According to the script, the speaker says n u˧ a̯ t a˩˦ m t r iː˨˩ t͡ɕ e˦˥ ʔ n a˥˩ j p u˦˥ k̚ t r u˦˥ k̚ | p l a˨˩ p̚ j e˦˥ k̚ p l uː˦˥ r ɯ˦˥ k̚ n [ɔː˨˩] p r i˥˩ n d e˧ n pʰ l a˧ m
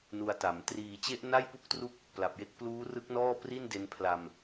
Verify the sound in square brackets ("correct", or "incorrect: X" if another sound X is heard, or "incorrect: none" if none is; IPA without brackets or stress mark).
incorrect: ɔː˥˩